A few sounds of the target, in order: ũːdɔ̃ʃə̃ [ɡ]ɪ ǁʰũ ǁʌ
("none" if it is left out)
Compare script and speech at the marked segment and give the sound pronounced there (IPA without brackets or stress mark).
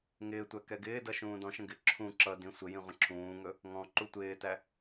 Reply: ɡ